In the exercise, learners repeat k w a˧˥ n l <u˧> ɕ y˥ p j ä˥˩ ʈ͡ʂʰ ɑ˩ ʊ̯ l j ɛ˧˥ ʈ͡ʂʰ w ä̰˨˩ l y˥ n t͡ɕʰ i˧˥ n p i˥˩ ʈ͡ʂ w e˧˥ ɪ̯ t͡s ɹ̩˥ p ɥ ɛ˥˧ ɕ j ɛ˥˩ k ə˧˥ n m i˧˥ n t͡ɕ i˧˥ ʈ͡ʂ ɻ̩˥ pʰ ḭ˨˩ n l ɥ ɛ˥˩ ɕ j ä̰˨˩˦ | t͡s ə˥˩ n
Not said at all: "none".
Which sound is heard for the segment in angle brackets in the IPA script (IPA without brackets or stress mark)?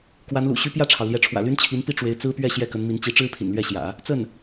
ṵ˨˩